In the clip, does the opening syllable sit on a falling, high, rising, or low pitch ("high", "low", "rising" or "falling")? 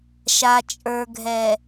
low